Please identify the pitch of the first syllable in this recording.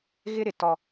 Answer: high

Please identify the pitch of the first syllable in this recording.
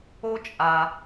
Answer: high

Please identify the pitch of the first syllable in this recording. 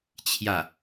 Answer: falling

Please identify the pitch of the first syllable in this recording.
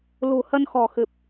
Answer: low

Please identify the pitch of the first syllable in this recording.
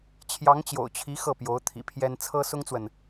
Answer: rising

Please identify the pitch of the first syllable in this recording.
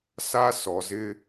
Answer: high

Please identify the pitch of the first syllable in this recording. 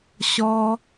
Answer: high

